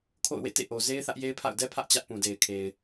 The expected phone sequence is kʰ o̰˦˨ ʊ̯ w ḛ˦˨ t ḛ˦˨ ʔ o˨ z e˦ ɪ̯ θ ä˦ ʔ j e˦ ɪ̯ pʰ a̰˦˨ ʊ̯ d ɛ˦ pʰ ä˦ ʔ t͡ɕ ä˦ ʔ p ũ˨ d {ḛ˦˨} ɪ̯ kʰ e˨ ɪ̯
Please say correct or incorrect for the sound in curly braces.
incorrect